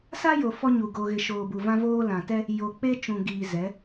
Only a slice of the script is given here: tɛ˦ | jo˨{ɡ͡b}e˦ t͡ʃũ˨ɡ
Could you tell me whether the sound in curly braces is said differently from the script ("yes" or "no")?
yes